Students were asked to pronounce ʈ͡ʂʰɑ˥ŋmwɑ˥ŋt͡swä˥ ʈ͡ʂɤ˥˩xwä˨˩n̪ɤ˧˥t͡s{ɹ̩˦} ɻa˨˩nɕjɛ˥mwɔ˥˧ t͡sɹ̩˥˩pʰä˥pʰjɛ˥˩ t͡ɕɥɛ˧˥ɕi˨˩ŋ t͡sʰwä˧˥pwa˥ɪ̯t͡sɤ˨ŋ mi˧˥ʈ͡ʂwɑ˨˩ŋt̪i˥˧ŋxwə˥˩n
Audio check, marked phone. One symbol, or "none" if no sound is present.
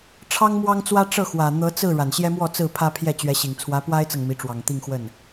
ɹ̩˥˩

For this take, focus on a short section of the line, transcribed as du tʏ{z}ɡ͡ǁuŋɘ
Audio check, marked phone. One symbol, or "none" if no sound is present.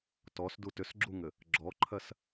s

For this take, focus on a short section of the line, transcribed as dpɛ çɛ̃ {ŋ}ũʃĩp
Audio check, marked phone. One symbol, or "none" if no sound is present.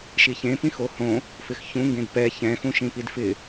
x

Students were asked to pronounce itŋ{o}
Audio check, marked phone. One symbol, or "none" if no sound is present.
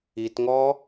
ɔ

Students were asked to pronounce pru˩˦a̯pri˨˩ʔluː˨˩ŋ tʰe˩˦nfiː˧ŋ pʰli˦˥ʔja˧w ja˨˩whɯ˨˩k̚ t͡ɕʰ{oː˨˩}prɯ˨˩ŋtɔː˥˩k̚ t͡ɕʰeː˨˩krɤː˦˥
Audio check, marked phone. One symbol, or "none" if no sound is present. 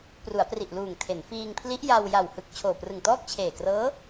oː˨˩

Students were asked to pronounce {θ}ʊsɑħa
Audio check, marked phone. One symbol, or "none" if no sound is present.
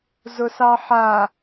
z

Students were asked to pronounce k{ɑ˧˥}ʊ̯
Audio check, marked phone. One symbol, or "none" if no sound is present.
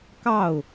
ɑ˥˩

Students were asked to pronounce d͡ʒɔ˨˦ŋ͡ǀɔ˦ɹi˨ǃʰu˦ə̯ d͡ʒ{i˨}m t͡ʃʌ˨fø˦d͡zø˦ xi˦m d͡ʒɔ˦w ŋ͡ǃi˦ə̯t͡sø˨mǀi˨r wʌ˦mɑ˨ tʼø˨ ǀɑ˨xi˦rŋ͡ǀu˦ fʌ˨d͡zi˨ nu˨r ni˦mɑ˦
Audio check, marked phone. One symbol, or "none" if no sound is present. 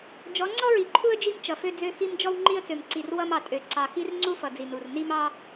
i˦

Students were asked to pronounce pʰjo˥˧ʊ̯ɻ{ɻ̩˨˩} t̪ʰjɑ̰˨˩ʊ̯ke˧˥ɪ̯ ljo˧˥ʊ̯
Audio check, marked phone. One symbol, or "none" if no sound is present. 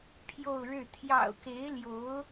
ɻ̩˥˩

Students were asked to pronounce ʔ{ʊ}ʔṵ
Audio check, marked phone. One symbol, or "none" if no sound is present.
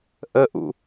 ə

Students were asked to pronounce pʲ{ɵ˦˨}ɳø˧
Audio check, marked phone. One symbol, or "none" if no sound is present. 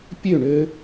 ø˦˨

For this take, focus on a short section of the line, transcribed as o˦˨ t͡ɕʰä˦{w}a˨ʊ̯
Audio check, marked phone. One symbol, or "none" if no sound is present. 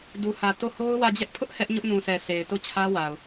w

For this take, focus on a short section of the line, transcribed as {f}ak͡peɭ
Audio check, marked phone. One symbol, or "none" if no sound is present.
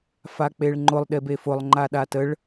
f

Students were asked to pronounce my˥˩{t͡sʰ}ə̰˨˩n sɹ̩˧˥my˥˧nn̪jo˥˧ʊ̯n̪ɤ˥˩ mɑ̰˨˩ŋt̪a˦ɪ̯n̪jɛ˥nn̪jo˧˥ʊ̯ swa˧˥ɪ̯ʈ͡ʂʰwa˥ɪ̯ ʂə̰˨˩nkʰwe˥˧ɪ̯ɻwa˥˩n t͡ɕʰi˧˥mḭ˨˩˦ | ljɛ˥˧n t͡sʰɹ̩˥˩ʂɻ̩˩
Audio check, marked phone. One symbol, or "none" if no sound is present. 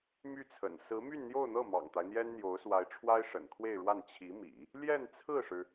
t͡sʰ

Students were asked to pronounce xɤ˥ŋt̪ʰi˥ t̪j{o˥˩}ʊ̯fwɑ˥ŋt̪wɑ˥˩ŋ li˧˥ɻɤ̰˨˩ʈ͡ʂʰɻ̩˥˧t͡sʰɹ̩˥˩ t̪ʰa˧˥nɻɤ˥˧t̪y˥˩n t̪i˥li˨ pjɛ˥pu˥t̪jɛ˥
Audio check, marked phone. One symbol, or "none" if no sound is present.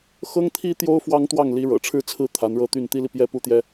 o˥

